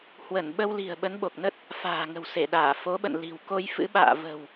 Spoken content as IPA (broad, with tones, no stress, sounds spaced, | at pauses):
h w ə˧˩ n ɓ ə˧ w l i̤˨˩ ə̯ ɓ ə˨˦ n ɓ o˨˩ k̚ n ə˦˥ t̚ | f a̤ː˨˩ ŋ ə̤˨˩ w s e˧˩ ɗ aː˧˩ f o˨˦ ɓ ə̰˧˨ n l i̤˨˩ w k o˧ j f ɨ̰˧˥ ɓ a̰ː˧˨ v ə̤˨˩ w